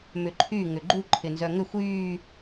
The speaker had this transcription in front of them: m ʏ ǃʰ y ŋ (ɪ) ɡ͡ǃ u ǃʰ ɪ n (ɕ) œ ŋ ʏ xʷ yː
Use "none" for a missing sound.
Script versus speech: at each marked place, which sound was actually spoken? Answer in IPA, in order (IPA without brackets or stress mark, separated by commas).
ʏ, z